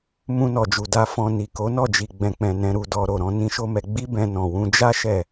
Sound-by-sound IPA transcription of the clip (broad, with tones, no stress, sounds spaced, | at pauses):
m ũ˧ n ɔ˨ d͡ʒ u˨ d a˧ f ɔ̃˨ n i˨ k o˨˦ n ɔ˦˨ d͡ʒ i˨ ɡ͡b ɛ̃˨ k͡p ɛ̃˨ n ɛ̃˧ ɾ u˧ d ɔ˧ ɾ o˨ ɾ ɔ̃˧ n ĩ˦ ʃ o˦ m ɛ˧ ɡ͡b i˦ b ɛ̃˧ n ɔ̃˨ w ũ˧ d͡ʒ a˦ ʃ ɛ˦˨